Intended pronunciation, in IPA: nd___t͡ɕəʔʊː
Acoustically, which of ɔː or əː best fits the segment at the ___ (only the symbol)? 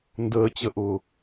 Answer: əː